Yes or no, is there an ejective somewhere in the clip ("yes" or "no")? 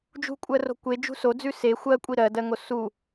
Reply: yes